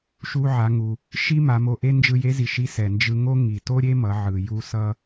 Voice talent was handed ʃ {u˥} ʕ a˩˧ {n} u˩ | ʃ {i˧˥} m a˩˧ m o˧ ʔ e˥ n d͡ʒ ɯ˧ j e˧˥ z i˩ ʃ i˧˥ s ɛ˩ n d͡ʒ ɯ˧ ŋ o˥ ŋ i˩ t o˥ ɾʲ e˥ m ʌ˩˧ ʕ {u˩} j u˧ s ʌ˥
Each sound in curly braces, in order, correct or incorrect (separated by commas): incorrect, incorrect, incorrect, incorrect